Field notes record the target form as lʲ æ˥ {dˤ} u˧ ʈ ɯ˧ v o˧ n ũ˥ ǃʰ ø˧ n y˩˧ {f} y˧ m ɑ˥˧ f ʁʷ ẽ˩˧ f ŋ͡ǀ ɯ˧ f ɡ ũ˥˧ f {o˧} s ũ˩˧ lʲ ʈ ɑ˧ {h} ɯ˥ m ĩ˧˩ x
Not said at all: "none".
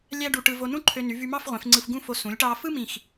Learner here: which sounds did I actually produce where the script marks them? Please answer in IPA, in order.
ɖ, v, o˧, f

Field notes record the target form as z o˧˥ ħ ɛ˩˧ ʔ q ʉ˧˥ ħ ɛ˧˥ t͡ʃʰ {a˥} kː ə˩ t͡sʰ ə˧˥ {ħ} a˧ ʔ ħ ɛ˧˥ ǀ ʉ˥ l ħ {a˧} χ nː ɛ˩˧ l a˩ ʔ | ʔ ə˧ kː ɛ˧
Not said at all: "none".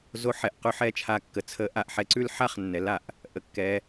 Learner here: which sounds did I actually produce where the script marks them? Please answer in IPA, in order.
a˧, ʔ, a˥

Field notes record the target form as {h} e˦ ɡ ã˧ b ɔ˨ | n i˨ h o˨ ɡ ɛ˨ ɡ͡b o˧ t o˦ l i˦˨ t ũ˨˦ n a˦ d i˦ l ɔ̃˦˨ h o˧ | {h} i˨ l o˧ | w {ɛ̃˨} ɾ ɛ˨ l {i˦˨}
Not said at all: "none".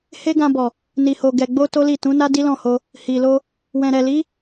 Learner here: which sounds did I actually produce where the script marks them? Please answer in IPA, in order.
h, h, ɛ̃˨, i˨˦

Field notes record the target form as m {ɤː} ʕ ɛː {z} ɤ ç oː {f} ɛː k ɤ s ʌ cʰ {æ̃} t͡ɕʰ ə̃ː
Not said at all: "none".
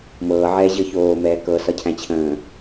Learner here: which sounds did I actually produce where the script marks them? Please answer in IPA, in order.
ɤː, ʑ, m, æ̃

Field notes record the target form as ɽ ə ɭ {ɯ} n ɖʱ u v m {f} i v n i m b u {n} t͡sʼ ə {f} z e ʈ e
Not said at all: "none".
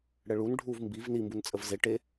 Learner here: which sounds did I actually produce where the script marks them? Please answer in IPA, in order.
u, b, n, v

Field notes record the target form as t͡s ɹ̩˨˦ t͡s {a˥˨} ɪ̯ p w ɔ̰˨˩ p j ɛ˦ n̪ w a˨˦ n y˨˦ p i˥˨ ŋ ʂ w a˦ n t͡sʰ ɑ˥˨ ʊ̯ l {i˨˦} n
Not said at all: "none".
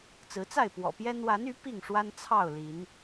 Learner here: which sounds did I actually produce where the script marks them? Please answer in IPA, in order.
a˥˨, i˨˦

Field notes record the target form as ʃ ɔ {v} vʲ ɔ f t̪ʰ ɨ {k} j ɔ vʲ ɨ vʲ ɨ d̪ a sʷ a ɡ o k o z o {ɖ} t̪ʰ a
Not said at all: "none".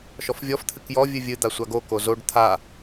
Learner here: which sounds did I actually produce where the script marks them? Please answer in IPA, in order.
f, k, ɖ

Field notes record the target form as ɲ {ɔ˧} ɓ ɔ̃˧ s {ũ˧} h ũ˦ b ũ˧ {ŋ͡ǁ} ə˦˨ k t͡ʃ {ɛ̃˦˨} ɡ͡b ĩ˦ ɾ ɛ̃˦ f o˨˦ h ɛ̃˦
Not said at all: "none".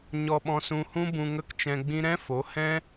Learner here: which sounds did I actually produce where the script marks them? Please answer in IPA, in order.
ɔ˧, ũ˧, ŋ, ɛ̃˧

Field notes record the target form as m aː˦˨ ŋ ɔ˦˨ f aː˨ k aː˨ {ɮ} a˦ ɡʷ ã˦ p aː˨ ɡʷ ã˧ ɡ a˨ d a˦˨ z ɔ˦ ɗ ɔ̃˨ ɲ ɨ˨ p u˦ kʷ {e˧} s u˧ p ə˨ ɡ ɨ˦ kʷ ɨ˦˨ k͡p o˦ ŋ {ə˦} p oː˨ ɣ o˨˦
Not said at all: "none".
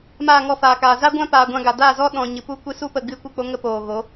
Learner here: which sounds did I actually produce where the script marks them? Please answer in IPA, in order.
z, e˧, ə˦

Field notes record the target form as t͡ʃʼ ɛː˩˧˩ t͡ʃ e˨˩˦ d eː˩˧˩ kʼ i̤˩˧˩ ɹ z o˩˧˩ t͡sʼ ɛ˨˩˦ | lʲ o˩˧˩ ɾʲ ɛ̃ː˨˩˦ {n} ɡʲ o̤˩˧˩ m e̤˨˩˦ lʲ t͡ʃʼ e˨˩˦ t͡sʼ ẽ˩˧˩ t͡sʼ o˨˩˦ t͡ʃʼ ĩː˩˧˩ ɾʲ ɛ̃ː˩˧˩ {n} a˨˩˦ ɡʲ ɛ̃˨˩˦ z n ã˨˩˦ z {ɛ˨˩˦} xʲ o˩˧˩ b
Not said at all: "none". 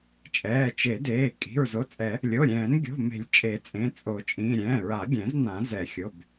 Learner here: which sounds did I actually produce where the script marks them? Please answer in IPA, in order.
n, ɹ, ɛ˨˩˦

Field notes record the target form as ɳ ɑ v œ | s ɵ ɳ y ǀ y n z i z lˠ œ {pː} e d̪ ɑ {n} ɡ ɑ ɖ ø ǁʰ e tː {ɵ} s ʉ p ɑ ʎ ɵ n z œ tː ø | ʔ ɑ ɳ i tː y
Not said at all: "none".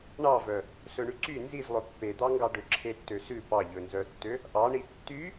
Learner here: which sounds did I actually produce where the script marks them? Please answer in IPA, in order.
pː, ŋ, ø

